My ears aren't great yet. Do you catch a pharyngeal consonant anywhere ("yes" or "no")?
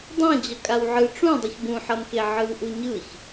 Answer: yes